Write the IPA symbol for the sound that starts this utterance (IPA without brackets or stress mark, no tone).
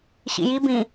ɕ